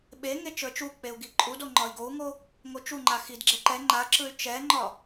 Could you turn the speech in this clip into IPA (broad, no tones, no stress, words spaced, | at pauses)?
ɓeŋe t͡ʃə˞t͡ʃuk͡peu̯ ɡiǃʼudo ŋ͡ǃɒi̯ɡou̯ŋo | ŋot͡ʃuŋ͡ǃa xidɡ͡ǁɛ ǃɛ ŋ͡ǃaǁɯy̯ t͡ʃɛŋ͡ǃɒ